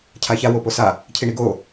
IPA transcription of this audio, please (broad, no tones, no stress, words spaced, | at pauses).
cʰaça woposa | cʰiɳiɡo